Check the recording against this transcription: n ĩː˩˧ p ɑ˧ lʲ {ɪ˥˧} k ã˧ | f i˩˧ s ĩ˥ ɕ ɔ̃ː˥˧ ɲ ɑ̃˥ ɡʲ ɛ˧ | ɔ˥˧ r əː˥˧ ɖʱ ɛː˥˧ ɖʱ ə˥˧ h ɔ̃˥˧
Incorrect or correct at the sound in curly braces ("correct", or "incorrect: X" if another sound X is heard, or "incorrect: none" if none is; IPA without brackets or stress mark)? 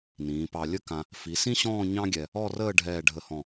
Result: incorrect: ə˥˧